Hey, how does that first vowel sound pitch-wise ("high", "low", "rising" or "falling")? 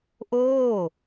falling